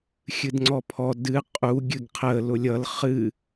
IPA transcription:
xʲ ɨ d ŋ͡ǀ ɔ pʰ ɔ d ɨ qʼ u ɡʲ ɨ ɡ qʰ ə l ʊ lʲ ʌ l χ ɨ

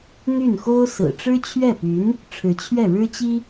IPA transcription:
n̪ y˥˩ n x o˥ ʊ̯ s ɹ̩˨˩ ʈ͡ʂ ɻ̩˥ t͡ɕʰ ɥ ɛ˥˩ p y˧˥ n | ʈ͡ʂʰ ɻ̩˧˥ t͡ɕʰ ɥ ɛ˥˩ ɻ ɻ̩˥ t͡ɕ i˥

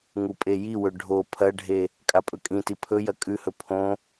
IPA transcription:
ŋ u pʼ e j i w ɵ ɖʱ o pʰ ɐ ɖʱ e | kʼ a pʼ ɵ kʼ ĩ t i pʰ ɵ j ɐ kʼ ʉ h ɵ pʰ õ

